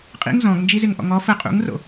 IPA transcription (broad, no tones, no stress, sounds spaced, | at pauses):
qʼ ḭ ŋ z ɔ̃ ɡ n d͡ʒ i z ɪ ŋ ʔ ɔ̰ ŋ ɔ f ə qʼ ṵ ŋ r o̰